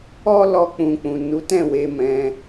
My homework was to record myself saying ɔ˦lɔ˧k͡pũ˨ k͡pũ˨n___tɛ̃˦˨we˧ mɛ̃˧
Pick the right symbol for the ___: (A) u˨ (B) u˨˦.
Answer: B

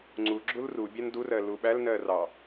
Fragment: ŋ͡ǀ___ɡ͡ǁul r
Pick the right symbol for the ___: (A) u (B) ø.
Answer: A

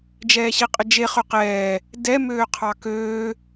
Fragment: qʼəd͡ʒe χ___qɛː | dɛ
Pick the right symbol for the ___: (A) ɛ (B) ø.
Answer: B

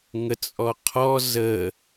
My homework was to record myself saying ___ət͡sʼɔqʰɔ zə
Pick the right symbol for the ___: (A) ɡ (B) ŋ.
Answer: B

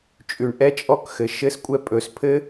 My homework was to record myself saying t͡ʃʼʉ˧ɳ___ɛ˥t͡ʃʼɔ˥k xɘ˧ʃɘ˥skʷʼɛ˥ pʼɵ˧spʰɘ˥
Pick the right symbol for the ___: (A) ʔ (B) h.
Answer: A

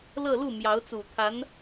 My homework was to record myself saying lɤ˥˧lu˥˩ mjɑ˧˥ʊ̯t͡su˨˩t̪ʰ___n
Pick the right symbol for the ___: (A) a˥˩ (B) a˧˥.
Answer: B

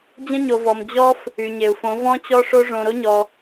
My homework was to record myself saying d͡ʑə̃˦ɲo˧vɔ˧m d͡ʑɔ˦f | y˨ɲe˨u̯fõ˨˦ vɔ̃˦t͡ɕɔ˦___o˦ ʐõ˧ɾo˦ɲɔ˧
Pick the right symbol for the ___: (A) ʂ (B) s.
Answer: A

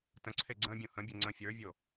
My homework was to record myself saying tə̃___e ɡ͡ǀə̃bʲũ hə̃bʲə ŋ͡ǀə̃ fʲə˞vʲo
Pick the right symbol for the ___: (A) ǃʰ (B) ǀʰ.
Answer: B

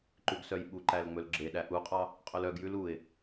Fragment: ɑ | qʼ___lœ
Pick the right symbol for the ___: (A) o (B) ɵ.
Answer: B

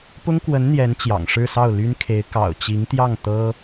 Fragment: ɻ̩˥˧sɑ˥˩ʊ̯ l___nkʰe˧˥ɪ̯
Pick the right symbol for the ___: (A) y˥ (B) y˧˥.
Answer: A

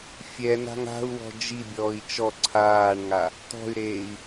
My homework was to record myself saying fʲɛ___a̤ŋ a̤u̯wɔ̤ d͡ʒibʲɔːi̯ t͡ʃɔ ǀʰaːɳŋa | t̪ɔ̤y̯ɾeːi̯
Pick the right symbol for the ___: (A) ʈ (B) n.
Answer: B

